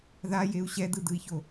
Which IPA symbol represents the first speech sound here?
ð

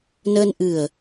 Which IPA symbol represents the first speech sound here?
n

